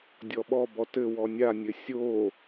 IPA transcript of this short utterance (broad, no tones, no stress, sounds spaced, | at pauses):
dʲ ɔ ɓ ɔ b ɔ t ɘ w ɔ nʲ a nʲ ɘ sʲ o